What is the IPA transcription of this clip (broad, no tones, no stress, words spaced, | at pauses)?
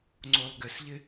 ŋ͡ǀolˠɡɪsʎɪ